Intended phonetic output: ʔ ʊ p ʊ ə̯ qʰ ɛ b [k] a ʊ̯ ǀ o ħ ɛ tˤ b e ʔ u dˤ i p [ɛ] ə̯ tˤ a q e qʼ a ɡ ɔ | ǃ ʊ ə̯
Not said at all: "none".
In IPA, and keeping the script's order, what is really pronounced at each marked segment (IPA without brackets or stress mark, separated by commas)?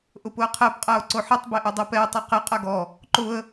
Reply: qʼ, ɛ